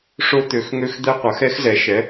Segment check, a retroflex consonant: present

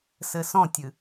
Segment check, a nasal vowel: present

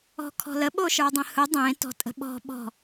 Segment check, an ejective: present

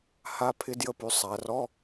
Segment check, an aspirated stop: present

